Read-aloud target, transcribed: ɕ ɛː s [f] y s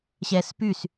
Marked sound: incorrect: p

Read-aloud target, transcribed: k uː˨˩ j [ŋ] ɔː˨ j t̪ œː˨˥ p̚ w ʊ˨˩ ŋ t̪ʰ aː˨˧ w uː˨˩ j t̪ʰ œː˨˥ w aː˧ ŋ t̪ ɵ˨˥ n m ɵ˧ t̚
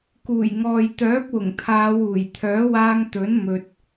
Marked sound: correct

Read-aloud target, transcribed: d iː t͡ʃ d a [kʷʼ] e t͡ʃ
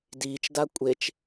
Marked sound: correct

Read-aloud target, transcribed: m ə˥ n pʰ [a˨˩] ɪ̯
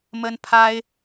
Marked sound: incorrect: a˥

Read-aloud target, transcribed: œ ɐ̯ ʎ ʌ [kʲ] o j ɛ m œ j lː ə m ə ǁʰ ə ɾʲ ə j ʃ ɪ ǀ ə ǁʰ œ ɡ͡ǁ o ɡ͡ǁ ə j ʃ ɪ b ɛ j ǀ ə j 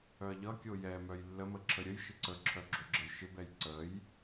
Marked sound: correct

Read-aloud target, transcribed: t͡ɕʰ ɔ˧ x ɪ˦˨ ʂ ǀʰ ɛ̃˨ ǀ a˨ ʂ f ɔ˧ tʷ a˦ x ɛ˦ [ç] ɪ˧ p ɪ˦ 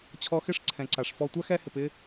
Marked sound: incorrect: h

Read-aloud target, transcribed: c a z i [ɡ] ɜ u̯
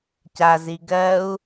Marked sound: correct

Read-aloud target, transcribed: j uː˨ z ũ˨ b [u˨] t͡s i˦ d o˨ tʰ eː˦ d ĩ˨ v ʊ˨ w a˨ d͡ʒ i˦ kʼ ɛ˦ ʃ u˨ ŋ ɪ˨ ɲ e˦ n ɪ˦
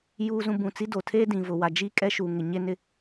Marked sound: incorrect: ũ˨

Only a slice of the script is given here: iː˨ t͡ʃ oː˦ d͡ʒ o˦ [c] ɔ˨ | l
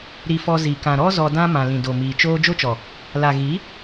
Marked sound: incorrect: t͡ʃ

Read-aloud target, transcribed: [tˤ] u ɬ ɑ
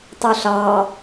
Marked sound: correct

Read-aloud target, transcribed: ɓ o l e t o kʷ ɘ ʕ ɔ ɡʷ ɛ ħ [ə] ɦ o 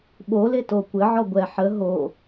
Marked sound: correct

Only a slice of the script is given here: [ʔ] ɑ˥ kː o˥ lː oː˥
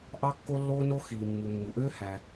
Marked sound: correct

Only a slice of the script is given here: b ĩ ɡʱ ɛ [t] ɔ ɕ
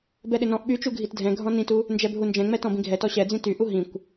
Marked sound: correct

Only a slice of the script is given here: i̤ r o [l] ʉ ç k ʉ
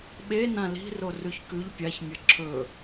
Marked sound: incorrect: r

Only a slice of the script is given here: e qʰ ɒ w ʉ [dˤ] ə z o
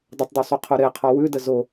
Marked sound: incorrect: d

